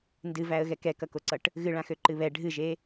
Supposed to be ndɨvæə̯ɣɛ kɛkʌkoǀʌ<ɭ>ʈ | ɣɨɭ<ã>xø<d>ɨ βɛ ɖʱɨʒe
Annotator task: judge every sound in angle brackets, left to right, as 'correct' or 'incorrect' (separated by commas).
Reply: incorrect, correct, incorrect